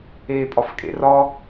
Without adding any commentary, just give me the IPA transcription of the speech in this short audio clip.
eː pʼ ɒ f kʼ ḛ r ɒ

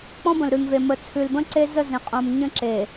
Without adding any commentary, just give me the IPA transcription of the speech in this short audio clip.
k͡p ɔ̃˦ b ə̃˨ l ɾ ʉ˨ ŋ v e˨ m ə˨ t͡sʰ ʉ˨ l b ə̃˦ ǀ e˦ z ə˦˨ z ẽ˨ qʼ õ˨ m ɲ ə̃˦ ǁ e˨

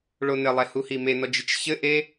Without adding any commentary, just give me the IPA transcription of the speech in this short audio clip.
ɭ o n ɘ lˠ ɛ h u h i m e n ɔ d͡ʒ ɨ t͡ʃ ç ɘ ʔ e

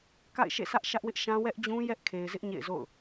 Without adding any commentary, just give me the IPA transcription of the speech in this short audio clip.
k a̰˦˨ ɪ̯ ʃ ḛ˦˨ s ä˦ ʔ ʃ ä˦ ʔ w ɪ˦ ʔ ʃ ã˦ w ɛ˦ ʔ d͡ʑ ũ˦ j ɛ˦ ʔ kʰ e˨ ɪ̯ z ɪ˦ ʔ ɲ ḛ˦˨ ɪ̯ z o̰˦˨ ʊ̯

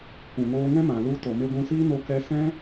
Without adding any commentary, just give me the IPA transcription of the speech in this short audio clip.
kʷ ũ˨ ŋ oː˧ ŋ ɛ̃˦ m ã˨ l u˧ t o˨ m e˧ ɡʷ ũ˧ s iː˦ n o˧ k ɛ˧ s ɛ̃˦

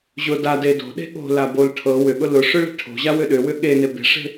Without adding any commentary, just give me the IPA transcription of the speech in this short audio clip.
ʑ ʊ d a d e d o̤ ɗ e̤ ɠ o̤ l a b o l ʈʰ ɤ w ʏ ɠ ʊ l ʊ ʂ ʏ ɭ e̤ ʈʰ o̤ ʑ a w ʏ ɗ ʏ w ʏ ɠ e n e b e̤ ʂ e̤

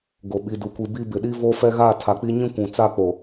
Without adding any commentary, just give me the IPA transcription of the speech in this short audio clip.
ɡ o˨ ɓ i˨ d u˨ kʷ i˨ b i˦ b ɪ˨ ɗ i˦ v oː˦ f ɛ˦ ɣ a˦˨ tʰ a˨ k͡p i˦ ɲ ĩ˦ kʷ ũ˨ t͡s a˦˨ k͡p o˨

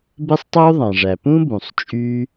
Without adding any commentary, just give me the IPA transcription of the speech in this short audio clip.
b e˥ sˤ tˤ o˥ u̯ ðˤ ɑ̃˩ ʐ æ˩ p ũ˥ b ũ˩ sˤ t͡ʃʼ y˥

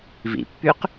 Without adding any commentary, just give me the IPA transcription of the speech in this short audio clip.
v ḭ pː y q

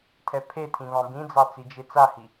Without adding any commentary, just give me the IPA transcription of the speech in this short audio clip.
tʰ ɛ pʰ e tʰ ĩ β ɑ̃ b ĩ d͡z ɑ t͡s i d͡ʒ e t͡s a h i

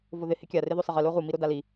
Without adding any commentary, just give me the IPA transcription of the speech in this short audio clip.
v o ð ɪ h ɪ kʲ a r ɪ ð o sˤ ɪ ʁ ɪ l o ʁ u m i ɾ o d a l i

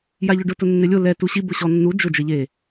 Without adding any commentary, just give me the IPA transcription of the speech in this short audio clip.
j a ʎ ʊ ɖ ʊ t ʊ nː ɪ lʲ ʊ l ɛ t u ɕ i b ʊ ɕ ɔ nː u d͡ʒ ʊ d͡ʒ e ʎ e

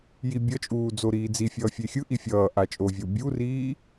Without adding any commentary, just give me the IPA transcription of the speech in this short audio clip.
j i bʲ ʌ t͡ʃʼ uː d͡z o ɾ iː d͡z i fʲ ʌː fʲ e xʲ ɯ ʔ i fʲ ʌː ʔ a t͡ʃʼ o vʲ o bʲ u r iː

